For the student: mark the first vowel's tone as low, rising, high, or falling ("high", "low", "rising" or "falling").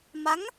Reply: rising